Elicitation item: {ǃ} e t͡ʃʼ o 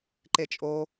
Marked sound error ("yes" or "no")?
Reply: no